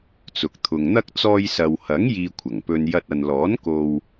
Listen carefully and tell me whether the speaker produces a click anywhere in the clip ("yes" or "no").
no